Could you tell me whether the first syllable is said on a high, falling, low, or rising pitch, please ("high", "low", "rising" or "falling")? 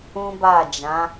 high